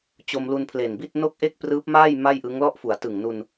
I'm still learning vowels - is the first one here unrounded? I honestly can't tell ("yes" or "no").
no